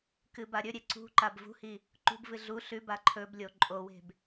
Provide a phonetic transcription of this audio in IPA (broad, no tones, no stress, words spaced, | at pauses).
kɨbaɾʲɵɾʲe ǀṳ ǃabvṳhi | ǃṳbvɨ ɮu ɬʉba ǃʰɵblʲo ǃʼowe̤b